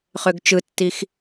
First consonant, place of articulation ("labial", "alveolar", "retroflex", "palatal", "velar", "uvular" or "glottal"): uvular